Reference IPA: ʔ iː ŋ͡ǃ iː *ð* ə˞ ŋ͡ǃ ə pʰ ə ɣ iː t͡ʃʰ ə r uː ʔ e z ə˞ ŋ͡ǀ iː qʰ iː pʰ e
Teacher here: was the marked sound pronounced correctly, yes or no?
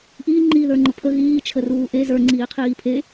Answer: yes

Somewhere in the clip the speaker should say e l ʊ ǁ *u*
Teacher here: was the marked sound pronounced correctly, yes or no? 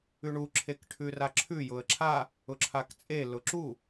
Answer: yes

